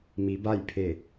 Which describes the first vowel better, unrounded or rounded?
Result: unrounded